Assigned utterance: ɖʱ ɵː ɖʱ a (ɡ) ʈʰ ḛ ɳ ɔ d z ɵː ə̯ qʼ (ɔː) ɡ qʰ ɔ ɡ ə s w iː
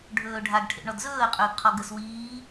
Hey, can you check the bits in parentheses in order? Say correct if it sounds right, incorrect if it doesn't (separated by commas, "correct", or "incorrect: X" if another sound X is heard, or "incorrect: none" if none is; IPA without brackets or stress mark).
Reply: correct, incorrect: ɵː